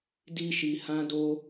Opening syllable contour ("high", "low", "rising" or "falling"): high